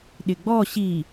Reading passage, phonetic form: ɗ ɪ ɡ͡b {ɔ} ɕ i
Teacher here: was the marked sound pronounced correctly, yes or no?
yes